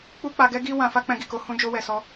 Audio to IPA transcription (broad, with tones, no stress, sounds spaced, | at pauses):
k͡p u˦ k͡p a˧ ɡ ɛ˦ ɡ i˦ w ã˧ f a˦ k͡p ɛ̃˧ ɡ i˨ k o˧ h ũ˦ d͡ʒ o˦ w ɛ˧ s ɔ˦